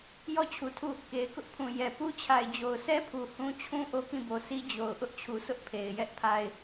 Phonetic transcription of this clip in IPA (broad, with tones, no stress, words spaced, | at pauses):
jɔ˦˨t͡ɕʰu˨tʰu˦˨ | ke˨ɪ̯kʊ˦ʔpʰũ˨ jɛ˨ pu˦t͡ɕʰa˨ɪ̯ d͡ʑo˨ʊ̯sɛ˦pʰu˨ hũ˦ t͡ɕʰũ˦ ʔo˦kĩ˦˨bo˨si˦ d͡ʑo˨ʊ̯ʔʊ˦ʔ t͡ɕʰu˨sʰʊ˦ʔpʰe˨ɪ̯ jɛ˦ʔpʰa˦ɪ̯